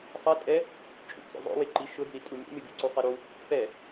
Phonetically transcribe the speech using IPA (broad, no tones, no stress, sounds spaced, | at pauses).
sˤ ɛ tʼ ɛ | t͡ʃʼ ṵ t͡s o̰ ðˤ o̰ w e ǃ i ʃ ʊ d͡z i tʼ u mʲ ṵ mʲ o bʲ o̰ ǀ u sˤ e ɾ u | p ɛ